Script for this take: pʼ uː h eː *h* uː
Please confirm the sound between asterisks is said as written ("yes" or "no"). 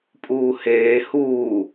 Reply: yes